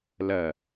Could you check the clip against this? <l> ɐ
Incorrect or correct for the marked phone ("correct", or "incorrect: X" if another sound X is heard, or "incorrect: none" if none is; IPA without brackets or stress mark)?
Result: correct